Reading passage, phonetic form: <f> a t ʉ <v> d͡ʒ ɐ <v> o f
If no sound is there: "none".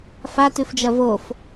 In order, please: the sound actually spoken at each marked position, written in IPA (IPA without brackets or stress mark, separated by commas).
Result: f, f, v